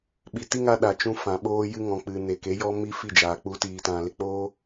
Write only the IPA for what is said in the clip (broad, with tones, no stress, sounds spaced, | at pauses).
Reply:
ɓ i˨ t i˦ ŋ a˧ ɗ a˨ t͡ʃ ũ˧ f ã˨ ɓ oː˦ j ɨ˦ ŋ ɔ̃˨ k͡p ɨ˨ n e˨ k e˨˦ j ɔ˦ m i˦ f i˦˨ d͡ʒ aː˨ k͡p u˧ t iː˧ t ã˧ l e˦ k͡p oː˦